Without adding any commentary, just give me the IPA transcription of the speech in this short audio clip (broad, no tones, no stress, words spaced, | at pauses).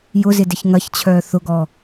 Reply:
jʊzɪ dɪçŋɐçt͡ɕʰœː θʊɡɔ